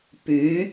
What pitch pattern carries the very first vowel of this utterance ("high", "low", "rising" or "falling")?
rising